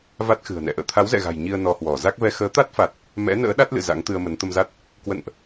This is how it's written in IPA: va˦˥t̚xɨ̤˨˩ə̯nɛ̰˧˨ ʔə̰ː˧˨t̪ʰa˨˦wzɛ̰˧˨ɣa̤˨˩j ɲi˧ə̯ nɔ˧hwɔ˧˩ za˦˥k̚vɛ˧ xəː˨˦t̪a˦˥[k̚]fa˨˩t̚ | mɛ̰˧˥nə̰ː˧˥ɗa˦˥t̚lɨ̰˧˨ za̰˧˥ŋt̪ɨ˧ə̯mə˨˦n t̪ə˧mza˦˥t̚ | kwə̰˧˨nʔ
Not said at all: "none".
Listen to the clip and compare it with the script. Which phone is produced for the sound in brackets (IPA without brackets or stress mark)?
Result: t̚